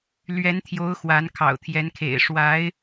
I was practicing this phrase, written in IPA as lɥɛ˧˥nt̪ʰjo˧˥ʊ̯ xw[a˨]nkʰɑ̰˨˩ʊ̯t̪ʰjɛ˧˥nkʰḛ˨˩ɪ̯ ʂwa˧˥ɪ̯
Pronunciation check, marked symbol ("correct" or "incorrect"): incorrect